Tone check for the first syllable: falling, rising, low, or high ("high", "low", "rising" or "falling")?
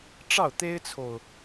falling